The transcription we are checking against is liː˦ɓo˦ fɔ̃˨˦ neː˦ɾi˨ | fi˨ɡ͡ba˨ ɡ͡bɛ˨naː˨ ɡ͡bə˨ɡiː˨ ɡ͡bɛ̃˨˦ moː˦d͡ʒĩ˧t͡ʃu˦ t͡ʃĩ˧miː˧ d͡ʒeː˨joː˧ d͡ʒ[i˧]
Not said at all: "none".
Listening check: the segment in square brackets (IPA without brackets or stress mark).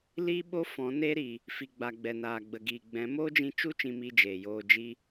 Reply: i˧